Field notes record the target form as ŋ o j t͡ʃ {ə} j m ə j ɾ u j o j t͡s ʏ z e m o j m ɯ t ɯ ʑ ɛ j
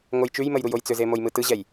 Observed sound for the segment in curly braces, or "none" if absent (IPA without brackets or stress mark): ʉ